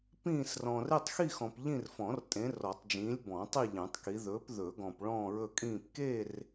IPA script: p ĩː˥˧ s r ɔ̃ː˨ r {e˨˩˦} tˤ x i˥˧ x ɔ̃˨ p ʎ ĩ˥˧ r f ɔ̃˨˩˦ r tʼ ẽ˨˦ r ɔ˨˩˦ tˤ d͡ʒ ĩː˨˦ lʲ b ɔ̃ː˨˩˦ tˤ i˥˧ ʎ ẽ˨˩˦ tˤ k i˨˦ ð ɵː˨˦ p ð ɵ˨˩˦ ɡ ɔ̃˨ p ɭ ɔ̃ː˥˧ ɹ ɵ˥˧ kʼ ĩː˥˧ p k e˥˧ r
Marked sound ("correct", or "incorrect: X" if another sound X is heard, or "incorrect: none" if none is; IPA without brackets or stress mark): incorrect: e˥˧